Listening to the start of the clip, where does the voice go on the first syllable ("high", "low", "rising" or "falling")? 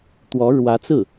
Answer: rising